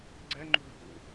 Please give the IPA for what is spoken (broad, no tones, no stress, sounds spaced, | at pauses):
ɡ͡ǀ ɛ ŋ͡ǃ ṳ ɡʱ ṵ